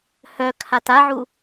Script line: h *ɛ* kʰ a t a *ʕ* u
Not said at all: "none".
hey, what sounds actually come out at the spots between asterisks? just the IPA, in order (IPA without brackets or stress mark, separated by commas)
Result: œ, ʕ